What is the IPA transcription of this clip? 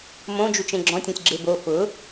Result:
m õ d͡ʒ u t͡ʃ ẽ ɡ͡ǁ ɔ̃ tʲ õ sʲ ɡ͡ǁ e b o f ʊ

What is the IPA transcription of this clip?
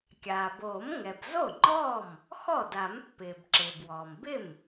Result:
kʲ aː˩ b oː˨˩˦ m ŋ ɛ˩ b z o˥˩ ŋ͡ǃ ɔː˥˩ m | x ɔ˥˩ d a˨˩˦ m pː ɪː˩ b ǁ ɪː˩ b w ɔː˩ m b ɪ˥˩ m

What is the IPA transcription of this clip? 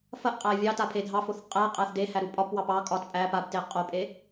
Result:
f ɐ ʔ qʼ æ vʲ ɑ t a pʰ e dʱ ɑ f o θ qʼ æ qʼ æ θ d e h æ ɾ u pʼ ɒ p w ɑ p ɑ kʼ ɒ t pʼ æ p a b t e qʼ o pʼ e

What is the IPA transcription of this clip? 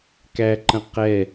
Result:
k æ ǃ ə̃ q ɛ

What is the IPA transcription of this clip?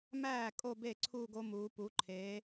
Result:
m æː˥˩ kʼ o˥˧ b e˥˩ ǀʰ uː˥˧ ɡ o˦˥ m uː˩˧ p u˩˧ ǃʰ eː˩˧

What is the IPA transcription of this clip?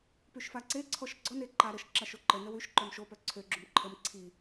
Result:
p y ʃ f a ǀ e ǀʰ ɔ ʃ ɡ͡ǀ ɔ n e ǃ a ɾ ə ʃ ǁ a ʃ o ǃ ə n ə w y ʃ ǃ œ m ʃ o p œ ǀʰ ø ɡ͡ǁ u m ǃʰ ə m ǀʰ i

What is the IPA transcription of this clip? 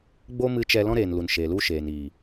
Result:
ɡ͡b o˦ m ɨ˧ t͡ʃ ɛ˧ l ɔ̃˧ ɾ eː˨ n l u˨ n ʃ eː˨ l u˧ ʃ eː˨ n iː˨

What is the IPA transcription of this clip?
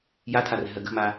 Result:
j a tʰ a r ɛ̤ ɦ ɜ ɡ ə̤ m a

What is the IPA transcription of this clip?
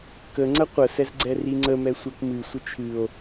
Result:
k ə ŋ͡ǀ ə qʷ ə s ɛ z ɡ͡ǀ ɛ r i ŋ͡ǀ ə m ɛ sʷ ɛ k m ɨ sʷ ɪ t͡ʃʰ ɨ o̯

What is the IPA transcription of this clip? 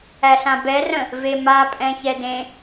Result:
æ ɬ ã b ɛ r ə̃ | v e m a pʼ ɛ̃ ç ɛ d ẽ

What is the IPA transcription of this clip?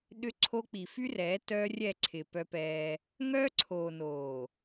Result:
ɗ ʏ˦ ǀʰ o˦ k͡p i˨ f y˦ r ɛː˨˦ t œː˦ rʲ ɛ˦˨ ǀʰ ɪː˨ p œ˦ p ɛː˦ | ŋ œː˦ ǀʰ oː˨ n oː˨

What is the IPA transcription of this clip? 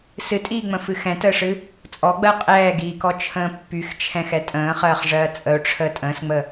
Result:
s ɨ tʼ iː ŋ͡m ə̃ f ɨ x ɛ̃ t əː ʂ ɨ | t͡sʼ ɔ ɡ͡b ɜ qʼ ɛː ɡ iː k ɔ t͡ʃʰ ə̃ː pː y x t͡ʃʰ ɛ̃ x ɛ tʼ ə̃ː χ ɜː χ ʐ ɜː t͡sʼ ə ʊ̯ ʈ͡ʂʰ əː tʼ ə̃ː s ŋ͡m ə

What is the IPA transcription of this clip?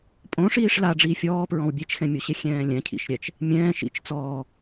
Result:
pʼ õ ʂ iː ʂ l a ɖ͡ʐ iː fʲ ɔː p ɹ ɔ̃ w bʲ e t͡ʃ x ɛ̃ mʲ o ɕ e xʲ ɛ̃ː lʲ ɛ̃ cʰ ḭ ʃ ɾʲ ɛ t͡ʃ | mʲ ɛ̃ː ʃ ḭ t͡ʃ t͡s ɔː

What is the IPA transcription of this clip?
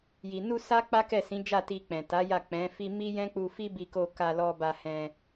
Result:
j i˨ n u˧ s a˦ k͡p a˦ k ɛ˦˨ s ĩ˨˦ d͡ʒ a˦˨ t i˧ k͡p ɛ̃˨ t a˨˦ j a˦˨ k͡p ɛ̃˨˦ f i˧ m i˦ j ɛ̃˦ k͡p u˧ f i˦ b i˧ k o˧ k a˧ l ɔ˧ b a˧ h ɛ̃˧

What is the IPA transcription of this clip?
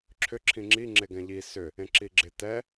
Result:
ǁʰ ʏ ǁʰ ĩ ŋ͡ǁ i ŋ͡ǁ e ɡ ɛ̃ ʎ i s ʏ | ẽ ǁ i ɡ͡ǁ ɪ t ɛ

